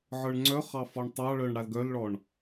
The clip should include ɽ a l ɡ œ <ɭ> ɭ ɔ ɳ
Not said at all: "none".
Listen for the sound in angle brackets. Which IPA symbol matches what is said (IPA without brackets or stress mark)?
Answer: l